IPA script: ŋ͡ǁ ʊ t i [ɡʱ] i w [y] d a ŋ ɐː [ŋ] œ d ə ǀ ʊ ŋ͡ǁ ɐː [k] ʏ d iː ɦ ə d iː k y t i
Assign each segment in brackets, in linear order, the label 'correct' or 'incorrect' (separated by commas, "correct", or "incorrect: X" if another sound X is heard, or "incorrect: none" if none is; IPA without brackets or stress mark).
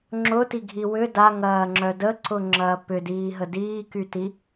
correct, incorrect: ʏ, incorrect: ŋ͡ǁ, incorrect: p